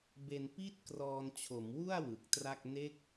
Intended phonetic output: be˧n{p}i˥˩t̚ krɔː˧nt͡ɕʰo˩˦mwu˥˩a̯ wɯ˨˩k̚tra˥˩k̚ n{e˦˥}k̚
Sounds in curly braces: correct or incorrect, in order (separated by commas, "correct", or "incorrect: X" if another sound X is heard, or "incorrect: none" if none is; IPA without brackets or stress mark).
correct, correct